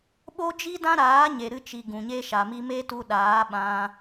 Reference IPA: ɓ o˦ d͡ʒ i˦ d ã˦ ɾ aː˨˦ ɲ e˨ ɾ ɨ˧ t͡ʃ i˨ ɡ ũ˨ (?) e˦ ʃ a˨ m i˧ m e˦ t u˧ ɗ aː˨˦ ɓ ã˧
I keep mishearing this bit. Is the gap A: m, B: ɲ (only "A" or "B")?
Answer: B